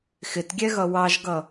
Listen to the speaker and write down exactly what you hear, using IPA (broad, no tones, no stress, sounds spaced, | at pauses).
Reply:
x ɪ t ɡʲ ɛ ɣ ʌ w ɑ ʒ ɡ ʌ